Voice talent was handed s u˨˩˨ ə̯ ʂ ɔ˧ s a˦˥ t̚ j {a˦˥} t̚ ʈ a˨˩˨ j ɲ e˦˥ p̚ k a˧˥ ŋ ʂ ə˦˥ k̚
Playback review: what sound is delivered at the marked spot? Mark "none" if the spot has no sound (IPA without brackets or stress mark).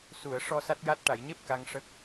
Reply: a˦˥